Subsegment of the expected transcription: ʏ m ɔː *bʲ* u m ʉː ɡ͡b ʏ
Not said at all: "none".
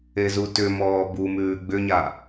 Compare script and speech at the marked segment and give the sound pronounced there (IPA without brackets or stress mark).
b